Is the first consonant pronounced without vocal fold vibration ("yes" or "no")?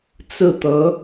yes